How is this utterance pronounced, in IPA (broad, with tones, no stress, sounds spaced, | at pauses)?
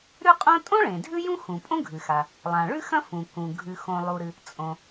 ɾ ʉ˥ qʼ õ˥ tʼ õ˥ ɭ ẽ˩ dʱ ʉ˥ j ũ˥ x ũ˩ pʼ õ˥ ɡʱ ɨ˩ x a˩ | lˠ ã˩ ɭ ʉ˥ x ɐ̃˥ f ũ˩ k ũ˩ ɡʱ ʉ˩ x õ˩ lˠ u˩ ɾ ɨ˩ | t͡sʼ õ˩